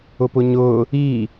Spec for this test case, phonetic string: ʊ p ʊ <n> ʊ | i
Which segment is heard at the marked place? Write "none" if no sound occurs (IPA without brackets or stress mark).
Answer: ɲ